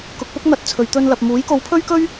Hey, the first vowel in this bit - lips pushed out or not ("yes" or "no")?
yes